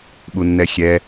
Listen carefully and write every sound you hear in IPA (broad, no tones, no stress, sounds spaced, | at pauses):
ɓ u nː ɛ xʲ ɛ